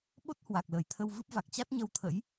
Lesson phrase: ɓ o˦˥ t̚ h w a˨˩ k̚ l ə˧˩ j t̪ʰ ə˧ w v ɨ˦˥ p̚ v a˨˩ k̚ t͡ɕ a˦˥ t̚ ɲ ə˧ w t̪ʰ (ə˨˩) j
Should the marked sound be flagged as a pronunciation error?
yes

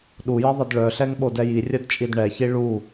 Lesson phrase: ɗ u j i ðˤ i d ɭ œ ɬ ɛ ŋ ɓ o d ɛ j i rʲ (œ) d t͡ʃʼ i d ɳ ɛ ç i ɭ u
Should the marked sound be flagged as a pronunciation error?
no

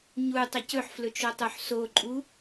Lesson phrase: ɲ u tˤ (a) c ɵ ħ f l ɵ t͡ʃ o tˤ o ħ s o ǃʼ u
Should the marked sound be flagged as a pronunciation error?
yes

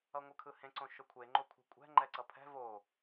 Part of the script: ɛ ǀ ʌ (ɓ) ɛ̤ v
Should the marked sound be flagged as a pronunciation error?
yes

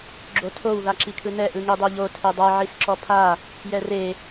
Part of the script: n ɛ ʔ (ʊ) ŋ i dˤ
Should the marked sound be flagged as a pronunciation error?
yes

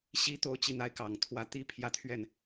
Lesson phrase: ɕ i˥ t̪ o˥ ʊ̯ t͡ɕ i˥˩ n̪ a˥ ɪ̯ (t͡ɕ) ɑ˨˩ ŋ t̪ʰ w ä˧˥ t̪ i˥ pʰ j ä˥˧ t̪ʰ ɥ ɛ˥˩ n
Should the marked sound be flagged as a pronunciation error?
yes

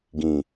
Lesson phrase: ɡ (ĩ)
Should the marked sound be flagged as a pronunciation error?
no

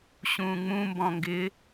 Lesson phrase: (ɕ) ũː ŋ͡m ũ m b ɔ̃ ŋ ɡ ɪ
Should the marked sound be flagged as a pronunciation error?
no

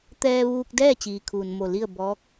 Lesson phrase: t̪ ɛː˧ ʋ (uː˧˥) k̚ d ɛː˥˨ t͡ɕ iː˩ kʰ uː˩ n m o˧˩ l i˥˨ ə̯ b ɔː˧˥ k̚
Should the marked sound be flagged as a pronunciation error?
yes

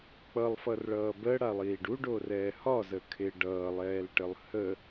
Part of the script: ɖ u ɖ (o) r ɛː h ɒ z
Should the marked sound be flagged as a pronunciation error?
no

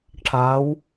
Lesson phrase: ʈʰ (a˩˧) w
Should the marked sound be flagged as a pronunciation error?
no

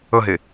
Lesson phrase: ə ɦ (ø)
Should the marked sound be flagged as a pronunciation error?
yes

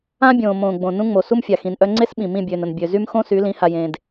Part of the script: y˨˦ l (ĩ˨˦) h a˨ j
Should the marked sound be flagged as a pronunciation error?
no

